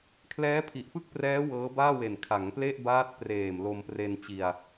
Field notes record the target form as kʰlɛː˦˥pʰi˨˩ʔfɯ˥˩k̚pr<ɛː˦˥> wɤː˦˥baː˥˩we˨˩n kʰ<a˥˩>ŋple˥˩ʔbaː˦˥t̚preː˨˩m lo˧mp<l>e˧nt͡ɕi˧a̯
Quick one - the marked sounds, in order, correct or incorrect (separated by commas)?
correct, incorrect, incorrect